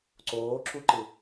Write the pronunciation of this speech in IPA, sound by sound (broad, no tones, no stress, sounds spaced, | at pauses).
ǀ oː ǁ u ǃ ɯ